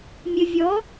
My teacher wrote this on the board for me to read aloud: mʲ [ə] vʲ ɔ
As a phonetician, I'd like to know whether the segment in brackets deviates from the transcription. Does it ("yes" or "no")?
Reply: no